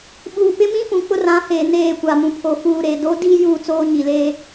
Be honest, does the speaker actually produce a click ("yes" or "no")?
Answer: no